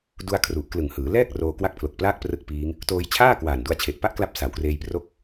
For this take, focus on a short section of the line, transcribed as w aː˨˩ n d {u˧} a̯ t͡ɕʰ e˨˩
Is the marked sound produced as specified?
yes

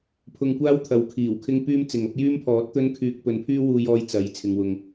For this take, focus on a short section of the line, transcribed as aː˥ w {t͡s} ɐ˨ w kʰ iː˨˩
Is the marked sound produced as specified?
no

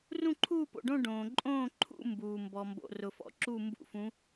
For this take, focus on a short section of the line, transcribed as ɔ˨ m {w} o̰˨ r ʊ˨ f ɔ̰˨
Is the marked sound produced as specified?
no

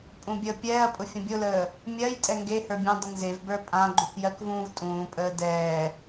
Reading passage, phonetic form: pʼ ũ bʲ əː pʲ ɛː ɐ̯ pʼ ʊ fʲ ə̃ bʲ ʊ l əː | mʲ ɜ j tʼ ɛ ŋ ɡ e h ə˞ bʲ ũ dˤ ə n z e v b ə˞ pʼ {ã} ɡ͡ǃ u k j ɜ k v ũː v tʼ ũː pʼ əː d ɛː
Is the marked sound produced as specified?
yes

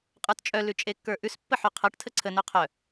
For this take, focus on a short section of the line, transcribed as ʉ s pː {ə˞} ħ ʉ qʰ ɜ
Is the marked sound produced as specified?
no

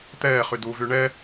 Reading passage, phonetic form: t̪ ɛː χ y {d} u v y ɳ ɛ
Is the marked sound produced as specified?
yes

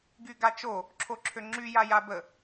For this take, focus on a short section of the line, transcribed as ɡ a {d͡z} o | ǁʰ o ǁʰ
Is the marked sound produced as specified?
no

